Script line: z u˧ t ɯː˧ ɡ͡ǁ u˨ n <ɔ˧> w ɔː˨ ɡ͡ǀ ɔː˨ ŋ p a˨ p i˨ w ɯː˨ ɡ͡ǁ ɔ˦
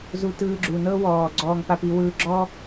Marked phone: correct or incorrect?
incorrect